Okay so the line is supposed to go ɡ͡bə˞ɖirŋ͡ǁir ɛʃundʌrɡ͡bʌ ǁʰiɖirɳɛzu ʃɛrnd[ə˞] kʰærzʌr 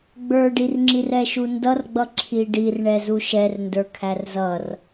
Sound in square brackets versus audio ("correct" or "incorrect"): correct